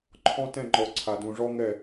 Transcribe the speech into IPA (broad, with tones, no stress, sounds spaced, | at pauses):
ǃʰ ɔ̃˦ t ɛ̃˦˨ ŋ͡ǃ ɔ˨ ǀʰ a˨ d ũ˨ ʐ ɔ˦ ŋ ɛ˦˨